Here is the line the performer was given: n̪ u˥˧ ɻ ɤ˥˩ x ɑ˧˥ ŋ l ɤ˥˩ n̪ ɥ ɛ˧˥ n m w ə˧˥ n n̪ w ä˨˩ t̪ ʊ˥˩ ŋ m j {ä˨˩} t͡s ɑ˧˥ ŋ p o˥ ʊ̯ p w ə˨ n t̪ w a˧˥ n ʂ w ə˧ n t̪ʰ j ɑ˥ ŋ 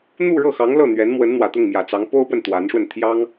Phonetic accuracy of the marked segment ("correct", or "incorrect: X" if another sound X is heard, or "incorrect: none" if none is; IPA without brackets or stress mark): correct